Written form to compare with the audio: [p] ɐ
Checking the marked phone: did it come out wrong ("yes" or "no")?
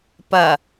no